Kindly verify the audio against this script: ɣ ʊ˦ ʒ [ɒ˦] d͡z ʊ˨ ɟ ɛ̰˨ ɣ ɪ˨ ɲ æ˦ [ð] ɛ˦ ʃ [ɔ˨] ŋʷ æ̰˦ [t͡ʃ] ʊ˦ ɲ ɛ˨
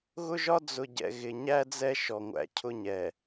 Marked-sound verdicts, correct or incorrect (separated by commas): correct, incorrect, correct, incorrect